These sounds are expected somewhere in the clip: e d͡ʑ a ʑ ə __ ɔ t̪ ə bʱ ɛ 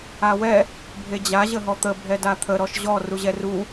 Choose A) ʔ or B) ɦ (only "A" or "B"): B